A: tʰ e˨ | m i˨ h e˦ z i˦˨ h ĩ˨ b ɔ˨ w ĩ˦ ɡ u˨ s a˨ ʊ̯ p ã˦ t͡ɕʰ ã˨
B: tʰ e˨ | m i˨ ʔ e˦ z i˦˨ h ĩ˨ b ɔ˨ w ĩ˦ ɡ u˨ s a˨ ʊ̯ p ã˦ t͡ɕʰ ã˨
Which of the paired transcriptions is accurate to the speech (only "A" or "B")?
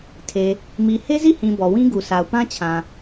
A